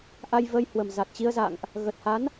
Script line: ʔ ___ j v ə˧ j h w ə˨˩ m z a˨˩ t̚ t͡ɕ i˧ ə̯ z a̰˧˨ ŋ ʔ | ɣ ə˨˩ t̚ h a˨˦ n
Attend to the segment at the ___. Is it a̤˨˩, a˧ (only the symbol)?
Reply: a˧